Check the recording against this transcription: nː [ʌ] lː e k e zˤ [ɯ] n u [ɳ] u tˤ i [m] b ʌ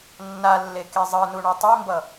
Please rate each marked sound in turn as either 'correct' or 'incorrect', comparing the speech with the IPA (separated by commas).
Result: incorrect, correct, correct, correct